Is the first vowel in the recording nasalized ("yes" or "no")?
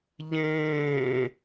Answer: yes